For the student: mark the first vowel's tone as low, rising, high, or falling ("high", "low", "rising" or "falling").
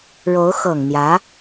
rising